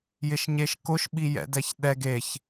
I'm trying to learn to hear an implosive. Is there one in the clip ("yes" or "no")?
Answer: yes